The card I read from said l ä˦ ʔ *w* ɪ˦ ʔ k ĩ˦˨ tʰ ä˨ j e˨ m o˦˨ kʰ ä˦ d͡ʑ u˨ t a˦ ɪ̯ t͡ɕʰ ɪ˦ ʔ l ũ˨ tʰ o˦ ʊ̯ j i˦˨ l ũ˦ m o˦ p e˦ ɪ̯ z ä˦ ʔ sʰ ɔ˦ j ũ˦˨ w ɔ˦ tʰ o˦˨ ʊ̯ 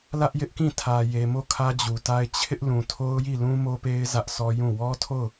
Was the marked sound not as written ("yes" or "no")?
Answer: yes